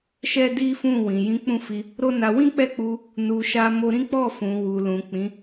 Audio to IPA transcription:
ʃ ɛ˦ d i˦ f ũ˦˨ w ĩ˨ j ĩ˨˦ k͡p ũ˦˨ f i˧ | ɾ o˦ n a˧ w ĩ˦ k͡p ɛ˦˨ k͡p u˧ | n u˨ ʃ a˧ m o˧ ɾ ĩ˦ k͡p ɔ˦˨ f ũ˨ w u˨ l ũ˨ k͡p ĩ˨˦

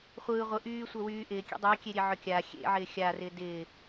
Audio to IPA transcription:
χʷ ɯː ʁʷ ɯ ʔ yː sʷ œ w yː ʔ ɪː kʲ ḛ dˤ yː kʲ e ɾʲ e ʕ œ kʲ aː xʲ ḛ ʕ ɪː xʲ a r ɪː d ɪː

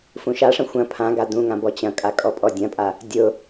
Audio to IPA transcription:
f ũ ʃ a ʂ ɐ̃ xʷ ɐ̃ pʰ ã ɡ a d ũ ŋ ã b ɔ t͡ɕ ɐ̃ kʼ a kʼ ɔ pʼ ɔ dʲ ɐ̃ pʼ a | dʲ ʊ

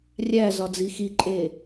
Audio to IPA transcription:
rʲ æ z ɒ d͡z i x i ǃʼ e

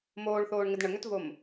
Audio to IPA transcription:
m oː ɭ θ oː ɳ ŋ ɪ d ɳ ə ŋ ø t v o m

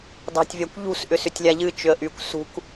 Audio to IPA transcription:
d ɑ̤ tʲ vʲ a kʷ ʎ ṳ s ʔ ʏ s ʏ tʲ lʲ a ʎ ɨ t͡ʃ ʏ ə̯ ʔ y kʷ s ṳ k

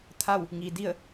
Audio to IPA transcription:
t̪ʰ a˥˨ w | ŋ i˩ d i˥˨ ə̯

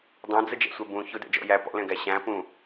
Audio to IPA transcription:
dˤ æ̃ d͡z ə d͡ʒ ɛ̰ sʷ ɛ b ũ ç ʊ d ɛ̰ d͡ʒ ɔ̰ j æ p ɔ̰ l ɛ̃ ɡ æ ɕ æ̃ p ũ

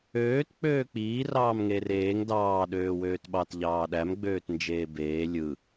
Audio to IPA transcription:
øː t k͡p øː k͡p iː r ɑː m ŋ eː r eː ŋ d ɑː ɗ øː w øː t ɓ ɑ t ʎ ɑː ɗ æ m ɡ͡b øː t n d͡ʒ eː b eː lʲ ɯ

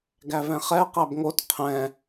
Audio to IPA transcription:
ɡ æ v ɛ̃ χ ɛ q æ b ŋ o t qʰ ɛ̃

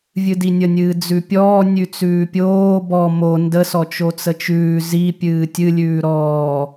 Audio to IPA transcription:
vʲ ɨ d i nʲ ə nʲ ɨː d͡z ʉ pʲ ɔː nʲ ʉ t͡s ʉː pʲ oː b ɔ m o n d ə s ɔ t͡ʃ o t͡s ə t͡ʃ ʉː z i pʲ ɨː tʲ ɨ lʲ ʉː ɾ ɔː

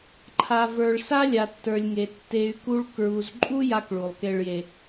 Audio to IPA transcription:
ǃʰ a˨ v ə˞˨ ɭ s a˦ lʲ a˨ tː ə˞˨ lʲ ŋ e˨ tː e˨ y̯ k u˦ ɭ k ɹ u˨ z ǃʼ u˦ j a˦ k ɭ u˨ lˠ k e˦ ɭ j e˦

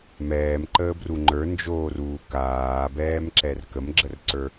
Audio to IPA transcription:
m ɛː m ǃ əː b r u ŋ͡ǃ ə˞ n d͡ʒ oː r uː k aː b ɛː m ǁ ɛ r k ə m ɡ͡ǁ ə r ǀ ə˞

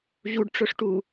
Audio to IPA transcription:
ʑ u ɖ ʈ͡ʂ ɵ ʂ ʈ u

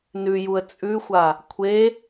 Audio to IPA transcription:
n ʉ j u ə̯ t͡sʼ ʉ xʷ a | kʷʰ e

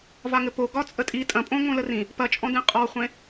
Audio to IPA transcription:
v a ŋ ɘ p o ɡ ɒ t͡sʼ ə tʼ i tʼ ɐ̃ pʼ õ ŋ õ l ə r ĩ | p ɐ t͡ʃʼ ɔ̃ d ẽ qʼ ɔ χʷ ẽ

